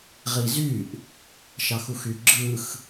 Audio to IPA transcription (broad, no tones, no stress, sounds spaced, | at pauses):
ʁ i z y ʔ | ʃ ɑ x u x y ɡ͡ǁ ɯ x